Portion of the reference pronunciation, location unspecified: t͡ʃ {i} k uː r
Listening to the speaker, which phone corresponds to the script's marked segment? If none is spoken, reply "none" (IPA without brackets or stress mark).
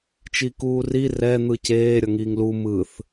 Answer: i